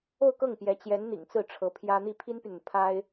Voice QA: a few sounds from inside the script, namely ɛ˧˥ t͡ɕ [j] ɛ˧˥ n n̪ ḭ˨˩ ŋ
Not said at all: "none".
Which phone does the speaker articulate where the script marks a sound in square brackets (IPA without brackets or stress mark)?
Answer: j